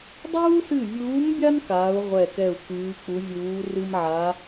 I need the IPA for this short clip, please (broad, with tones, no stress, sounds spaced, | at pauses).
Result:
dˤ uː˥ s ɨ˦˨ vʲ uː˧˥ m bʲ a˥ n k aː˧˥ u̯ ʁʷ ɛ˦˨ k ɛ˦˨ u̯ k ɨː˧˥ k͡p u˧˥ vʲ uː˧˥ r ɨ˥ m ʕ a˧˥